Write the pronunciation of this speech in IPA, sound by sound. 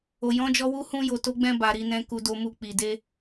o˨jɔ̃˨˦d͡ʒɔ˧ wu˧hũ˧ jo˨to˨˦ɡ͡bɛ̃˧ ba˨ɾi˨ nɛ̃˨ ku˨do˨mu˨ k͡pi˨ de˧

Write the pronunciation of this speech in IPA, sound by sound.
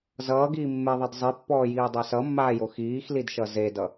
zʌːɡiː mːeðˤʌd zˤipːɔːjiːdˤa sʌmːaːjo xiːxlidʃʌ zedʌ

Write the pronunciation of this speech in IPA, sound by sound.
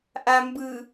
ʔambɯ

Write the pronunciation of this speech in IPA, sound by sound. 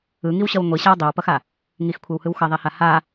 ɯŋiwɕʌw ŋʷiɕaw dˤiwpʌxa | ŋixkʷʰewhɯw xʌðˤeha ha

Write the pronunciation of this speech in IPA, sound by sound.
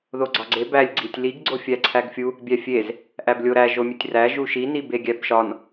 ðoɡ͡ǀɒɡ͡ǀe bælʲ ɡ͡ǀitʲliɡ ɡ͡ǀofʲæǀʰæɡfʲu | bʲæfʲez | ʔæblʲoɾæ ʒomʲetʲræ ʒuʃi nibeɡʲæbʃɒn

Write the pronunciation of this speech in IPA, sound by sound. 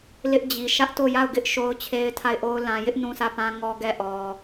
lɪ˦ʔd͡ʑi˨ ʃä˦ʔ to˦˨ ja˦˨ʊ̯ɡɪ˦ʔ ʃo˦ʊ̯t͡ɕʰe˦ɪ̯tʰa˦˨ɪ̯ʔo˦ʊ̯ lã˨jɪ˦ʔ nũ˦sä˦˨pã˦ ŋɔ˦ɡɛ˦˨ʔɔ˨

